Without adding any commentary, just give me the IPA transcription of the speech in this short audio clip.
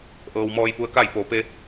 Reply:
ʔ ɤː˩ w m ɔː˧ j p u˧ ə̯ k a˥˨ j p oː˩ p e˧

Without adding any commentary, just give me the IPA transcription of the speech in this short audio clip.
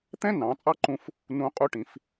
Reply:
t̪ ɛ̃˥ n ɑ̃˩˧ t͡sʼ ɑ˥ ǃ ũ˧ f | n ũ˧ qʼ u˧˥ ʈ ĩ˩˧ f

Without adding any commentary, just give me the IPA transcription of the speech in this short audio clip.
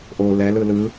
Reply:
ʔ o l ɛ l ɯ l ɯ

